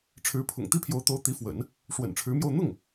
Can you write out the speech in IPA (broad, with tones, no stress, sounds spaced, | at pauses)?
ʈ͡ʂʰ ɻ̩˧˥ pʰ ʊ̰˨˩ ŋ t̪ i˥ pʰ j o˧˥ ʊ̯ t̪ o˧˥ ʊ̯ t̪ i˧˥ f w ə̰˨˩˦ n | ʂ w ə̰˨˩ n ʈ͡ʂʰ ɻ̩˧˥ m j o˥˧ ʊ̯ n̪ ʊ˥˩ ŋ